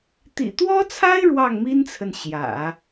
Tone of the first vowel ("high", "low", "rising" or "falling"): low